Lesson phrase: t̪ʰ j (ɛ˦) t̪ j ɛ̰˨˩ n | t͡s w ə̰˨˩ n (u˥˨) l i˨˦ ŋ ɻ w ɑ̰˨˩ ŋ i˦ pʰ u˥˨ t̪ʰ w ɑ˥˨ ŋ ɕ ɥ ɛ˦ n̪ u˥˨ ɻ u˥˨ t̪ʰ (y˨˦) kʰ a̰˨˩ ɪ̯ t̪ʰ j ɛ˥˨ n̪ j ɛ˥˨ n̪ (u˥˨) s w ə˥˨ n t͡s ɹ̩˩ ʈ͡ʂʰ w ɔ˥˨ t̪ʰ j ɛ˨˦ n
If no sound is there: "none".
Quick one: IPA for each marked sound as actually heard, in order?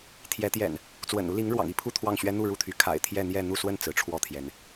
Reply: ɛ˨˦, u˦, y˨˦, u˥˨

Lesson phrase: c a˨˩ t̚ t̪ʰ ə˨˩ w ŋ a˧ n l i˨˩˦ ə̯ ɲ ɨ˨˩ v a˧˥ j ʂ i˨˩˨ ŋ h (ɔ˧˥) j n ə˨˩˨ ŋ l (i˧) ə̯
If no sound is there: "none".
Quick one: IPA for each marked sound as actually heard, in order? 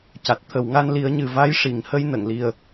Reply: ə˧˥, i˨˩

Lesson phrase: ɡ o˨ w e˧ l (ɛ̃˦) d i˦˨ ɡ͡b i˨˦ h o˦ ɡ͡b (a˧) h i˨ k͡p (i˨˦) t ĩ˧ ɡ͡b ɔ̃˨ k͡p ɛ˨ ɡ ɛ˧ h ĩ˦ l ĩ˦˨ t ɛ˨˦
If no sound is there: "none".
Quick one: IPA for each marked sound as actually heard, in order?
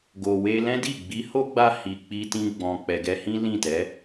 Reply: ɛ̃˦, a˧, i˧

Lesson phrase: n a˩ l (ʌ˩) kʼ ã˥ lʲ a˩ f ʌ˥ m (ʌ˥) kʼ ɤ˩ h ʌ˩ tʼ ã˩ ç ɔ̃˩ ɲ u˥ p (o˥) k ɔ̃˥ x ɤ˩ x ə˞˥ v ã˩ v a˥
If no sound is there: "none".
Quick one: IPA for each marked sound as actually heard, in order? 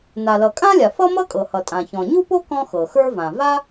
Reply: ʌ˩, ʌ˥, o˥

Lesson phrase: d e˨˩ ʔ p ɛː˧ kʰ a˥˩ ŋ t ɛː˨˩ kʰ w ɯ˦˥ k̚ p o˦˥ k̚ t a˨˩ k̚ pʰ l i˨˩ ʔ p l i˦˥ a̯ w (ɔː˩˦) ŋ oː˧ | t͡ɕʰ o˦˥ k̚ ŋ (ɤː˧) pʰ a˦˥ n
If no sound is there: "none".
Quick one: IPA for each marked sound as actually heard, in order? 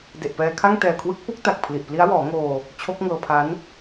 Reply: ɔː˩˦, ɤː˧

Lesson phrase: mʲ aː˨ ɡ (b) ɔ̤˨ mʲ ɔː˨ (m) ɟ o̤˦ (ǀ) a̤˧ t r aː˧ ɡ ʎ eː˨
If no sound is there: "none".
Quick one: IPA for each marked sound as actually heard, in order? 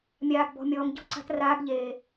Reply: b, m, ǀ

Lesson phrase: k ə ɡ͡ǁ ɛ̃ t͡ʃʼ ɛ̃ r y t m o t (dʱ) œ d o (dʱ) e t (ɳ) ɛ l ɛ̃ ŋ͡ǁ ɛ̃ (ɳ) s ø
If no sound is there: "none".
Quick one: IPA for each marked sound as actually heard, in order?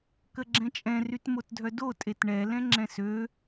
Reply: dʱ, tʼ, ɳ, none

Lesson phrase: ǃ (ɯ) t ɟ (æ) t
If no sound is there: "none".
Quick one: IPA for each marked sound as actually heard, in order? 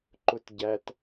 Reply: ʊ, æ

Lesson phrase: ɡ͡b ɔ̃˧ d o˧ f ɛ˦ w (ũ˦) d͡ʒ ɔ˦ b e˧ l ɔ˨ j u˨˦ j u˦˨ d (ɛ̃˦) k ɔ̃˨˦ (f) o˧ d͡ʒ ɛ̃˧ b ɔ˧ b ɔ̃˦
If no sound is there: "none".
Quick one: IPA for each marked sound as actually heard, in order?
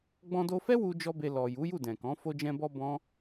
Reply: u˦, ɛ̃˨, f

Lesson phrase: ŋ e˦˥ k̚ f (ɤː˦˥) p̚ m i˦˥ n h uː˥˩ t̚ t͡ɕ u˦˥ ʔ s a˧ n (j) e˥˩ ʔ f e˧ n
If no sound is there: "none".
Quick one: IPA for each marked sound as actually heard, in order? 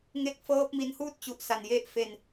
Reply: ɤː˦˥, j

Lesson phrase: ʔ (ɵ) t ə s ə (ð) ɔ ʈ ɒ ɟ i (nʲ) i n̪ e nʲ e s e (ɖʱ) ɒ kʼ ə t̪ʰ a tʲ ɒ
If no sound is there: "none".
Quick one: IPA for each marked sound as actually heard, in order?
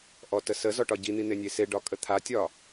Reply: ɔ, z, n̪, ɖ

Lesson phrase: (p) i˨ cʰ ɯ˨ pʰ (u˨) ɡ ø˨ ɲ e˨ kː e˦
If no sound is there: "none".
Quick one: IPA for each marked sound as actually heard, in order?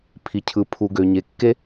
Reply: pʰ, u˨

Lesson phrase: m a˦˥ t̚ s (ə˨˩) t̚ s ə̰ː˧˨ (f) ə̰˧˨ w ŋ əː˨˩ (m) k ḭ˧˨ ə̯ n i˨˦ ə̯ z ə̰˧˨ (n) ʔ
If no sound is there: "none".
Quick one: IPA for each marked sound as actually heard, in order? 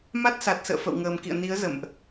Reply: a˨˩, f, m, m

